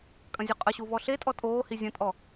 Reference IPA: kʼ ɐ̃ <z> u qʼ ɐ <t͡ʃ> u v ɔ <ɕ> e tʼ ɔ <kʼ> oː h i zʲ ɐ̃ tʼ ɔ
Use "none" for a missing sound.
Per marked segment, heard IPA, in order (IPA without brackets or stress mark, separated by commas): zʲ, ɕ, ɬ, tʼ